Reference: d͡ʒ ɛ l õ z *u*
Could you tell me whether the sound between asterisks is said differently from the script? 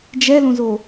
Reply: yes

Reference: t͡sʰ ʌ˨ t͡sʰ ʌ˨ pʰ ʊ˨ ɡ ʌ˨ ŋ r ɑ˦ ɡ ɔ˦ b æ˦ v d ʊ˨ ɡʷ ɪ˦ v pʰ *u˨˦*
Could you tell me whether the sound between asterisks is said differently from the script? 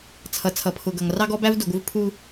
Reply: yes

